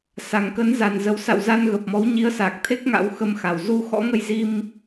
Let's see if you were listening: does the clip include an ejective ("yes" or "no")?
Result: no